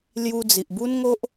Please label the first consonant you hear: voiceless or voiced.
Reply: voiced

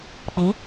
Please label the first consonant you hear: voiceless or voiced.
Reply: voiceless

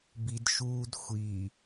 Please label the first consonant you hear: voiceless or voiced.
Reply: voiced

